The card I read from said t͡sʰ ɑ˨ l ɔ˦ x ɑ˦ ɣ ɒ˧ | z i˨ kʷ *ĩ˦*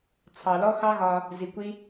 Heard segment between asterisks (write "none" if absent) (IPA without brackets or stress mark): i˦